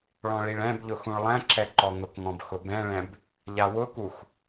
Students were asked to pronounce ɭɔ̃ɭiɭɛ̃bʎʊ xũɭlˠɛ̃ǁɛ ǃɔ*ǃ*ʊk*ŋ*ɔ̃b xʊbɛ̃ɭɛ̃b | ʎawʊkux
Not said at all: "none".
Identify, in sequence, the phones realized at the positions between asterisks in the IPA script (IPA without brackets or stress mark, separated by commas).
ŋ, ŋ